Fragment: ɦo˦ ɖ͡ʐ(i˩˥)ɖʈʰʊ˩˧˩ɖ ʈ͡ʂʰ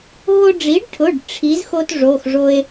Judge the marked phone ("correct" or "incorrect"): correct